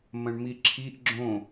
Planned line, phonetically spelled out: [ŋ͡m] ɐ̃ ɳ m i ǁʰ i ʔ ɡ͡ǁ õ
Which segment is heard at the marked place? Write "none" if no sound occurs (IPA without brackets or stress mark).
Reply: m